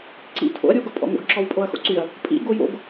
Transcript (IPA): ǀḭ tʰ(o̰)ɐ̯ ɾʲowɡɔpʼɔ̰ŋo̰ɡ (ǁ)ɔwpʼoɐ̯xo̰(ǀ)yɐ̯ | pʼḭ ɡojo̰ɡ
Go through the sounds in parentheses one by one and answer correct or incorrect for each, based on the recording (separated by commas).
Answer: correct, correct, correct